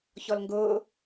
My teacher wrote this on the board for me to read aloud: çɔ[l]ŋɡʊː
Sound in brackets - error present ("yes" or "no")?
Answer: no